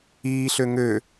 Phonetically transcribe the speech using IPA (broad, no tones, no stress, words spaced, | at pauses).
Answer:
iːɬø ŋø